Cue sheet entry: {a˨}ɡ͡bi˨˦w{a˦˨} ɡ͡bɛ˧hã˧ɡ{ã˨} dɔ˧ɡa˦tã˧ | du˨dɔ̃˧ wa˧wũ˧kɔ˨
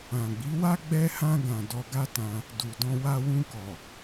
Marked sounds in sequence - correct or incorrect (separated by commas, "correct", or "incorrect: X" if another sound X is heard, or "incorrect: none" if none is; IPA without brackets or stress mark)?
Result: incorrect: ã˨, incorrect: a˦, correct